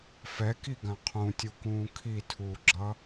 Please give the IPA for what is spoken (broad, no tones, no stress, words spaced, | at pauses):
fɛkiɡã qʰũtʲukũː kʰitʰuːɡ͡ǁʌ